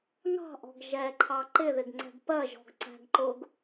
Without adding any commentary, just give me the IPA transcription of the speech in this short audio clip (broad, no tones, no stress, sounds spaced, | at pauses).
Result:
ŋ ɑ̤ ʔ ɔ̤ ɡ ʒ ɛ ǃʰ ɑ ǃ ɪ ð ɪ ɡ ŋ͡ǀ ɛ̤ ɡ p ɜ ʒ ɔ̤ ɡ ǀ æ̤ ɡ ǃ ʊ ɡ